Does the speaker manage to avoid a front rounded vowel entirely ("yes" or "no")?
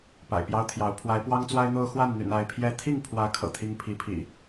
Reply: no